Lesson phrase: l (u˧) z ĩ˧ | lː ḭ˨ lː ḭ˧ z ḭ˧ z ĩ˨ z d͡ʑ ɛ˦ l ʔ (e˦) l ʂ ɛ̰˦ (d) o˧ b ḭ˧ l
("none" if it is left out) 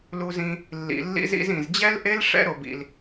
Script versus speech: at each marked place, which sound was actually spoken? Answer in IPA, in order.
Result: u˧, e˦, ɾ

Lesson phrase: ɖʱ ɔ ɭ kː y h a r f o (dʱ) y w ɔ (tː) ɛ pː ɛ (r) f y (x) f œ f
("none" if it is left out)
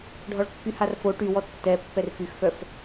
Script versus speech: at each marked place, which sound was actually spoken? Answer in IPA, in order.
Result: ʈ, tː, r, x

